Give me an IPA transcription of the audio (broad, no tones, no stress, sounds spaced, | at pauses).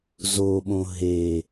z o ɓ õ ɦ e